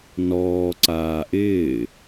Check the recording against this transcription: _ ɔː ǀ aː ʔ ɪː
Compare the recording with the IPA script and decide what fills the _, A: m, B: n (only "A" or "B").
B